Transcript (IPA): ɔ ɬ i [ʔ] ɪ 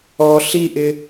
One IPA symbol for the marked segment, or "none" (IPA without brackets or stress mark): ʔ